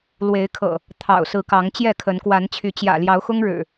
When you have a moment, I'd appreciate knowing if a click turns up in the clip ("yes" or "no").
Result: no